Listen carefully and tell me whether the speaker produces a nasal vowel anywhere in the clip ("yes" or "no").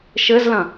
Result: yes